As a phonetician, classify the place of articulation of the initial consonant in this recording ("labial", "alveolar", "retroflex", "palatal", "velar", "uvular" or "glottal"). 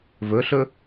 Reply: labial